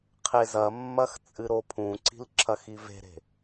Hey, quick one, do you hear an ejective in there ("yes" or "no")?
yes